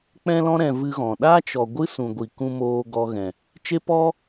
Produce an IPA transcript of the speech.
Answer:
k͡p ɛ̃˧ l ɔ̃˧ ɾ ɛ̃˨ v ɨ˧ ɣ ɔ̃˨ ɗ aː˦ t͡ʃ ɔ˨ ɡʷ ɨ˦ s ũ˨ ɡʷ i˨ k ũ˦ m oː˧ ɡ ɔ˧ ɣ ɛ̃˨ | t͡ʃ e˦ p ɔ˦

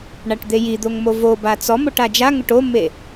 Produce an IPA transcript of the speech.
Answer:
ɳ a ʈ d̪ e j i d̪ o ŋ m o v o b a t͡s ɔ m o ʈ a d͡ʒ a ŋ ʊ ʈ o mː e

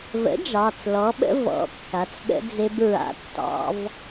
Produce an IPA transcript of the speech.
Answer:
v ə̰˩˥ d͡ʒ ɑ˩˧˩ t͡s l ɔ˩˥ ɓ ə̰˦˥ v ɔ̰˩˧˩ kː a˩˥ t͡s ɠ ə̰˦˥ d͡z e˦˥ b ɹ a̰˦˥ tː ɑ̰˦˥ v

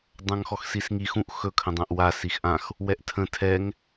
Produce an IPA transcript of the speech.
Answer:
dˤ ã ŋ x ɔ x s i s ŋ i x ũ ʔ x ɵ kʰ ə̃ dˤ ã ʔ w a s i x ʔ ã x | w ɛ ʔ tʰ ə̃ tʰ ɛ ŋ

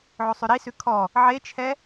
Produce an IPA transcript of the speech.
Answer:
ʕ o sˤ ʉ ɾ i s ʉ kʰ ɔ | ʕ e t͡ʃʰ ɛ

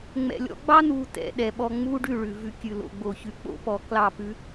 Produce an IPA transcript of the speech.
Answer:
ŋ͡m ɛ̰˨ lʲ ɔ̰˧ ɡ͡b ɑ˦ n u˧ t ɛ̰˧ ɗ ɛ˨ ɓ ɔ˧ ŋ͡m u˦ ɖ ʉ˦˨ ɭ ʉ˨ v ʉ˧ kʲ ʉ˨ l o̰˨ ɡ͡b o˨ ç ʉ˨ k͡p o̰˦ p ɔ˨˦ k l ɑ˦˨ p ʉ˦

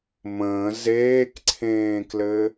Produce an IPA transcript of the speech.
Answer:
m ə̃ː z eː k ǀʰ ẽː k l ɘ

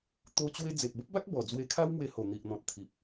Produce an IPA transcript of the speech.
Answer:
t̪ o˦ t͡ɕ w e˦ d͡z e˨ p̚ b ə˦ p̚ b a˦ k̚ b ɔ˨˩ d͡z w e˧ kʰ a˦ w m w e˧ h o˨˩ n̪ i˨ ʔ n̪ ɔ̃˨ t̚ t̪ʰ i˨ p̚

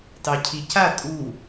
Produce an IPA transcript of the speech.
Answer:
t ɑ cʰ i c a tʼ u

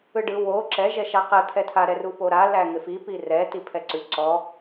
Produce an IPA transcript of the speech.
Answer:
ɯ ɖ ɯ w o ǁ ɛ ʒ ɛ ʃ a q ɛ t̪ʰ ɛ tʰ a ɾ ɛ r u p o ɾ a l æ ŋ ɪ f i p i r ɛ t i pʰ ɛ ǀ ʉ ǀ ɔ

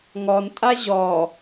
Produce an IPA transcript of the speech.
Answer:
ŋ ɔ n tʼ a ʑ ɔ

